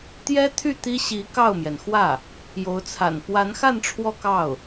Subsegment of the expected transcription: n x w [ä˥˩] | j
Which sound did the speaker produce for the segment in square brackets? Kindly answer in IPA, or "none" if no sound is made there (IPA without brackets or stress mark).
ä˥˩